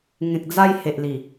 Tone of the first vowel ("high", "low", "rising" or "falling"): low